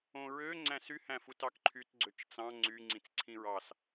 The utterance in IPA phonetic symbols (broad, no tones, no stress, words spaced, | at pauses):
õɹø ŋ͡ǀæ̃sy hæ̃futɑkǃʰyt ɡ͡ǀøt͡ʃt͡sɑ̃ ŋ͡ǀy ŋ͡ǀĩt͡sǀʰĩɹɑs